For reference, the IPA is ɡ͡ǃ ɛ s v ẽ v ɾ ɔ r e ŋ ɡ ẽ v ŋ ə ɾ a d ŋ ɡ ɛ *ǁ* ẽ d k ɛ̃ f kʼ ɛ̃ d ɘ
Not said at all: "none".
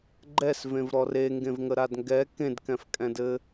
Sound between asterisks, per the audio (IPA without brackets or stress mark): k